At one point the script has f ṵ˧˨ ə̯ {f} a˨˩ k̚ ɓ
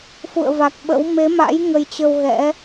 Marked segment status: incorrect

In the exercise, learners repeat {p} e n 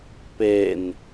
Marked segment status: correct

